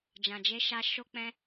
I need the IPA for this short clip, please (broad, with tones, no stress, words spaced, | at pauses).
d͡ʒã˨d͡ʒe˧ʃa˧ ʃo˦k͡pɛ̃˦